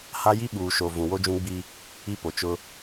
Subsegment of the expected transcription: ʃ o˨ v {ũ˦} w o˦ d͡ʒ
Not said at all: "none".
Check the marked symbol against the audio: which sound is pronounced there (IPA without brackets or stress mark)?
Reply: ũ˨